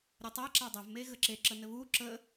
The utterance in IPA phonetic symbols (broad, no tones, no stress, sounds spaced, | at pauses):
ɾʲ ɘ tˤ a ǁ a dˤ ɐ v m e ɣ ə ǁ e ǁ ə n ɘ β u ǁ ə